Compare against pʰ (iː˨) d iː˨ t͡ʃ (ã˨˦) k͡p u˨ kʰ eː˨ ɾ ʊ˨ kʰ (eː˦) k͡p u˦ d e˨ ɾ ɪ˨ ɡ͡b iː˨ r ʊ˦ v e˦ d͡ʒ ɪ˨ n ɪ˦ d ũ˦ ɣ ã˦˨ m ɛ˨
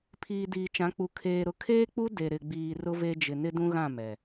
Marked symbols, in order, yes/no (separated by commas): yes, yes, yes